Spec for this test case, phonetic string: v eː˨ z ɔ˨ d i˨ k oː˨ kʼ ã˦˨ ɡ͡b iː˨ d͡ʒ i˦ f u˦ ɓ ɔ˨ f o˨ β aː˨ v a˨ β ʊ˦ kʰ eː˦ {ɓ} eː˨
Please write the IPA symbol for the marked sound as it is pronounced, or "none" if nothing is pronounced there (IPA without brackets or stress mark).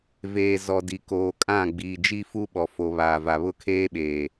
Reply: ɓ